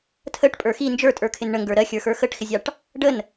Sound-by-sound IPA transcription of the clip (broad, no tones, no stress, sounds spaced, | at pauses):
tʰ ə ʈ pʼ ə˞ x i n d͡ʒ ə˞ tʼ ə˞ kʰ ɪ n ɳ ə ŋ ɡ ə˞ ɾ ɜ xʲ ə˞ x ə˞ x ə ʈ x ɪ zʲ ɑ ʈ | ɖ ə n